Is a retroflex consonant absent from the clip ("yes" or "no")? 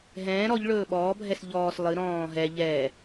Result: no